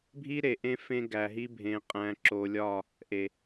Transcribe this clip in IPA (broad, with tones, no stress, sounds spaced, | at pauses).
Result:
bʱ i˦ ɾ e˨ ʔ ẽ˦ f ẽ˦ ɡ æ˨ ɦ i˦ bʱ ẽ˨ qʼ æ̃˨ ǁ o˨ lʲ ɒ˦˨ | ʔ e˨